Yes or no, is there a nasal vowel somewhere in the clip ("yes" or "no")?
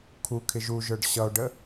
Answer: no